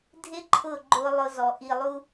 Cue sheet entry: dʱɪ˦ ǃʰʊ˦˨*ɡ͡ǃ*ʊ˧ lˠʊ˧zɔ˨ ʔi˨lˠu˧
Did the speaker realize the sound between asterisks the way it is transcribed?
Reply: yes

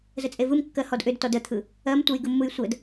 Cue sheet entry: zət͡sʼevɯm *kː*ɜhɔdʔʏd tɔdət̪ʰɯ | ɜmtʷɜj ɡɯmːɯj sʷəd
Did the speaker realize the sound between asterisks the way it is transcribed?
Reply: yes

